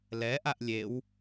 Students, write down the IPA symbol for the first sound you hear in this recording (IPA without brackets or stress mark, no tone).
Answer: l